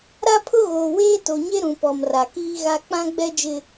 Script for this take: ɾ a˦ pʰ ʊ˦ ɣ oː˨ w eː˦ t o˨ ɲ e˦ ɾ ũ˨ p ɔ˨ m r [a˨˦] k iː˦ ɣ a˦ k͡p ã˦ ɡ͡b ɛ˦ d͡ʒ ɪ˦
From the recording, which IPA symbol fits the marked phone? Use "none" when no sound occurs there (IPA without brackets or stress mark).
a˨